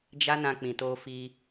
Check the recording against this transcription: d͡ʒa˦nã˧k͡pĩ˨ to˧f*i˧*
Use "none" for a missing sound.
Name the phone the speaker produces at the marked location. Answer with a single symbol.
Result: i˧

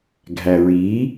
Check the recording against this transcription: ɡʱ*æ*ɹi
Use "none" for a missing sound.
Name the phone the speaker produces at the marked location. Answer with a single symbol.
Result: æ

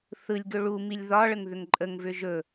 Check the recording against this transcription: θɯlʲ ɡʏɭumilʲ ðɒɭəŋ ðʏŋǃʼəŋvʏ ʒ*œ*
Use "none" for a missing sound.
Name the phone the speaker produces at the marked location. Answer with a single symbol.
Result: ɵ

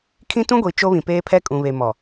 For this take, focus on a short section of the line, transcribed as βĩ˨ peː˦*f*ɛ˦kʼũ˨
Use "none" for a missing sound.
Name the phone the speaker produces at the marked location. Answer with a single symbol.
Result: pʰ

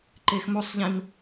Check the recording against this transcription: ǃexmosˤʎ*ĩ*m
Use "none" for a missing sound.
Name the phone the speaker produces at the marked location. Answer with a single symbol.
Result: ĩ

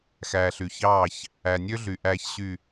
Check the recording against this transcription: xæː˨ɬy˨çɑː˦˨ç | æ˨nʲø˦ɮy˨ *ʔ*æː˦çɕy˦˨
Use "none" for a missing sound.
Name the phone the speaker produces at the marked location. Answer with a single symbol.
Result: ʔ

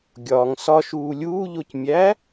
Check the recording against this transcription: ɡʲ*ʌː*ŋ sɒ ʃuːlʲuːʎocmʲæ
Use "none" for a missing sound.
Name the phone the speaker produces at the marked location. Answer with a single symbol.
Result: ɒː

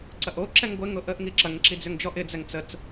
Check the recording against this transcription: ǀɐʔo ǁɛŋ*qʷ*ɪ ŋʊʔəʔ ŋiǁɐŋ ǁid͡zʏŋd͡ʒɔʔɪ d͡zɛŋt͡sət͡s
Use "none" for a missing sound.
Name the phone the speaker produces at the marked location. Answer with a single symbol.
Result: ɡʷ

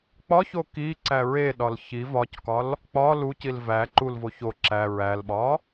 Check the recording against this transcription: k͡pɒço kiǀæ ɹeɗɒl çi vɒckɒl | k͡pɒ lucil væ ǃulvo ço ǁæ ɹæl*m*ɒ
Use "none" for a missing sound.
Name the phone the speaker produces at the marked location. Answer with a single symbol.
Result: ɓ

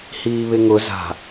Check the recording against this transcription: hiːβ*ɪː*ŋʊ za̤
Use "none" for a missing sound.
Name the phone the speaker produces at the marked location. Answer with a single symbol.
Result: ɪ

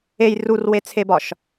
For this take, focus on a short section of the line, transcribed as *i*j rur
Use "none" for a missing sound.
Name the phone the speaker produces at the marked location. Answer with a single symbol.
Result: e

